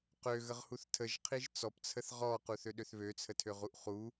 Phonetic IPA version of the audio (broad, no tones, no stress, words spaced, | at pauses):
qøɣəʁhuθ tʰəʒqʰiʒ t͡sɔpt͡sʰəθ ʁɔquθøɗøθ βøt͡sʰətʰøʁuʔ χu